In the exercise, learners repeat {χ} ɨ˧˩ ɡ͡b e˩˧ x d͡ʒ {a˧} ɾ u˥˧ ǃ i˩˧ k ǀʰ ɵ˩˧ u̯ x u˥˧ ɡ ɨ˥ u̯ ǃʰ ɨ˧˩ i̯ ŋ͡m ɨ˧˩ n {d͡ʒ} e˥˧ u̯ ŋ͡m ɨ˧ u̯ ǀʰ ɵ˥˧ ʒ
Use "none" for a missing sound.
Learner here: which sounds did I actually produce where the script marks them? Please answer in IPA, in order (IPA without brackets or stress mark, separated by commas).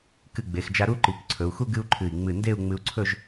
k, a˧, d